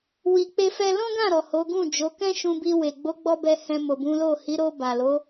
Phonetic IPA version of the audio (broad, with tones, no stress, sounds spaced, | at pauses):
w i˧ k͡p e˦ f ɛ˦ l ɔ̃˦ ɡ ã˦˨ ɾ ɔ˨ h o˨˦ ɡ ũ˦˨ d͡ʒ o˨˦ k ɛ̃˦ ʃ ũ˧ b i˧ w e˨ ɡ͡b o˨˦ ɡ͡b ɔ˧ b ɛ˧ h ɛ̃˧ m o˨ b ũ˨˦ l o˦˨ h i˨˦ ɾ o˧ b a˨ l o˨˦